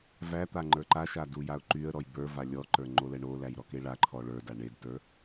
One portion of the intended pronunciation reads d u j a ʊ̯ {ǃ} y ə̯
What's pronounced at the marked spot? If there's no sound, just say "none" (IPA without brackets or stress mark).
ǃ